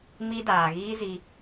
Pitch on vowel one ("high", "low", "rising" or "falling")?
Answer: high